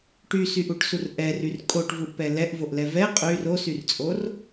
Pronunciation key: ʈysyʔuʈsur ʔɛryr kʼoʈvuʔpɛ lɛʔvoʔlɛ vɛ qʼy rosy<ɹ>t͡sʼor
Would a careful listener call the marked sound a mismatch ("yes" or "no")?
yes